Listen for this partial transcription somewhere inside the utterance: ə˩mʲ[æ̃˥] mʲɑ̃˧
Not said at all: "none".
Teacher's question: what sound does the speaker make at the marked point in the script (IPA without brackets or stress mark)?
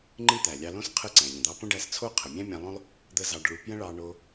æ̃˥